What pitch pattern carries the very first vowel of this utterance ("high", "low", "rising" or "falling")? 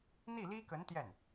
falling